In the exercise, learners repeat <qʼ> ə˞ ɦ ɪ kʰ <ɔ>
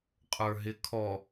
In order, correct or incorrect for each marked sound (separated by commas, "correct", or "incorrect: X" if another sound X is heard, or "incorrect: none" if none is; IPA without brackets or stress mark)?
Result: correct, correct